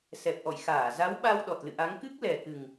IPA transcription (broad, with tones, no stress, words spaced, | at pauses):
sɛ˨˩p̚ʔɔ̰˧˨jxaː˧˩ za˨˦wɓa˧w ɗɔ˨˩t̚lɨ̰˧˨ʔa˨˦ŋ kɨ˦˥k̚lɛ˨˩kɨ˨˩ŋ